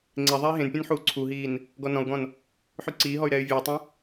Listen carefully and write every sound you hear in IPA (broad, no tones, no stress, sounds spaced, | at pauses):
ŋ͡ǀ e ðˤ ɛ i̯ ɦ ẽ n pʲ ũ n ħ uː ǀʰ u ɦ iː n | ɡ ɔ n ɔ̃ u̯ ɡ ɔ̃ n | ħ y ǀ iː ɦ ɔ y̯ ɾ ɛː y̯ vʲ uː tˤ ũ